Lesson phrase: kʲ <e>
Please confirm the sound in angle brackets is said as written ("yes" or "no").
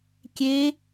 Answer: yes